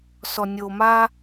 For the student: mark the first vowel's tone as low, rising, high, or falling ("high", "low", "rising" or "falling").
low